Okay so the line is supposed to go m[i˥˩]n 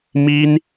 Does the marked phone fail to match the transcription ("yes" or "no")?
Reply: yes